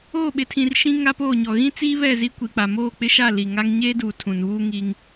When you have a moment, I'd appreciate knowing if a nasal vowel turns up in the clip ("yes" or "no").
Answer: yes